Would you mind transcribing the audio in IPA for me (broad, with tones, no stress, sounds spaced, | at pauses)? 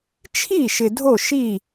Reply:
t͡ʃʰ i˥˩ ʃ ɪ˨ dʱ o˥˩ ʃ i˥˩